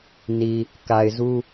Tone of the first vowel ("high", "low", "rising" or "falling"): low